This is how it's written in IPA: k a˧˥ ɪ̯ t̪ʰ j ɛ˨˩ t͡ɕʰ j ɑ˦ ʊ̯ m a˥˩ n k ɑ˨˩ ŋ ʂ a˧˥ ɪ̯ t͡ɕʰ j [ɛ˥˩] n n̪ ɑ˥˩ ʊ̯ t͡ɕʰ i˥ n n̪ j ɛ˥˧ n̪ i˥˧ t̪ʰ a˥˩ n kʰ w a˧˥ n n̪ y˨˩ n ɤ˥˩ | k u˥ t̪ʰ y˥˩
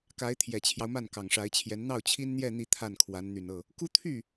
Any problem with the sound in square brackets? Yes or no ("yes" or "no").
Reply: yes